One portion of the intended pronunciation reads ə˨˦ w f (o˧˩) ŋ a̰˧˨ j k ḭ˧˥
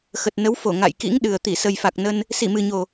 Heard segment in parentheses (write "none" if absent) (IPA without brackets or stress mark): o˧˩